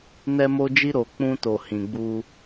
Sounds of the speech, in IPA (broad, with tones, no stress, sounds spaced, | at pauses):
n ɛ˦ m o˦ d͡ʒ i˦ ɾ o˨ k͡p ũ˦ t o˨ h ĩ˨ ɡ͡b u˦